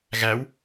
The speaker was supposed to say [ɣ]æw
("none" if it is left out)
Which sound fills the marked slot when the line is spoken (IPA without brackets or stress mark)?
ɣ